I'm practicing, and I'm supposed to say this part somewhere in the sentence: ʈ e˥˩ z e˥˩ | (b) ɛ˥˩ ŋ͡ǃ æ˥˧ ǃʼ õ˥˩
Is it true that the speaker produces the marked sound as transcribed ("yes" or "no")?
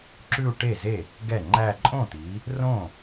no